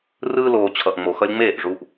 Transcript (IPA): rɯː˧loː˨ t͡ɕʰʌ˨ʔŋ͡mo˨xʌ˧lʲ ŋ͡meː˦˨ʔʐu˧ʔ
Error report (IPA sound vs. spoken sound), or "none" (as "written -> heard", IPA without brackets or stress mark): none